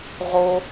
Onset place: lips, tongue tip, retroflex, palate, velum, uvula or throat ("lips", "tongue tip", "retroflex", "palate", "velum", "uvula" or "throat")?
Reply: uvula